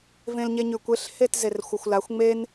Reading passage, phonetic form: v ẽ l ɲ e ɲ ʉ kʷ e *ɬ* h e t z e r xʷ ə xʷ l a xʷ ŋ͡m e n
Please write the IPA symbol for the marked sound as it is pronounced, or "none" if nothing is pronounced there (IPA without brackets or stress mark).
ɬ